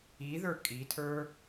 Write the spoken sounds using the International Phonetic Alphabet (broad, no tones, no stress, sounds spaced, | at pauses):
i ð ə˞ kʼ i tʰ ə˞